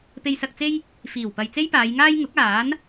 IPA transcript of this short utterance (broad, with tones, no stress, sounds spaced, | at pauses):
p e˧ j s ɐ˧ k̚ t͡s e˥ j | f iː˨˩ w p ɐ˨ j t͡s e˥ j p aː˨˧ j ŋ aː˥ j ŋ ʊ˨˥ k̚ aː˨˥ n